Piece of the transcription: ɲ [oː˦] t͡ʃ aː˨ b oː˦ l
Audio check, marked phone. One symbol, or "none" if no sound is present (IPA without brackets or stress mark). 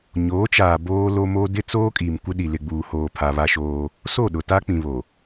oː˨˦